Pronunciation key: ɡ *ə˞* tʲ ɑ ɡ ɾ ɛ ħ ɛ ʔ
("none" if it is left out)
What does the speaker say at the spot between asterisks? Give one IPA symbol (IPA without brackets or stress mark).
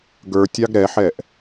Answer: ə˞